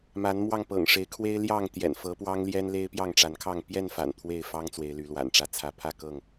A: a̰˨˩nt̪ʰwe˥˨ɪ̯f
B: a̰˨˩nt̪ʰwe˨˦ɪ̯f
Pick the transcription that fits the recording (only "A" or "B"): A